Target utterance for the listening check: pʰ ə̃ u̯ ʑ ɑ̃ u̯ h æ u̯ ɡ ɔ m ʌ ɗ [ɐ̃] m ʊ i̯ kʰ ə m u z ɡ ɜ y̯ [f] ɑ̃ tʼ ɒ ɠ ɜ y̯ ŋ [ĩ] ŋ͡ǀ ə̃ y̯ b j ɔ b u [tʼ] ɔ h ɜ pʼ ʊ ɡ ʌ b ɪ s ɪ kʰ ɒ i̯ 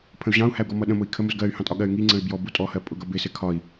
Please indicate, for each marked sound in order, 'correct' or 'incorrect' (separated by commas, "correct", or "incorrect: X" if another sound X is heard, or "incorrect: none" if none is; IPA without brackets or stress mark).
incorrect: ə̃, incorrect: h, incorrect: i, correct